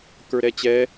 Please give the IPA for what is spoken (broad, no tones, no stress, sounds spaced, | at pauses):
k ə˞ ɾ ɛ t͡ɕ ɛ